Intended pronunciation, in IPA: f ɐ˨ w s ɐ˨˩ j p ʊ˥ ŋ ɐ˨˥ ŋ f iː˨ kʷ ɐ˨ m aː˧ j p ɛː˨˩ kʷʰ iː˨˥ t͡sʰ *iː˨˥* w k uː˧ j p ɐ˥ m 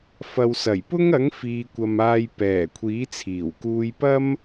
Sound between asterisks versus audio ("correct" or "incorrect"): incorrect